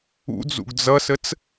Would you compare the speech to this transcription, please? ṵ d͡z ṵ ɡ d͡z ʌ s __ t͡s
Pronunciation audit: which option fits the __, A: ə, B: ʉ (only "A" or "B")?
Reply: A